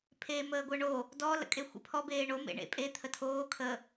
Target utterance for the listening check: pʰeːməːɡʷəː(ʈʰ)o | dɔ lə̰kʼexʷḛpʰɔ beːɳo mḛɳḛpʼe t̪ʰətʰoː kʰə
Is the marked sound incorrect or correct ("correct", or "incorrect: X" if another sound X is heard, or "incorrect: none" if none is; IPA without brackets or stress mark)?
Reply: incorrect: ɳ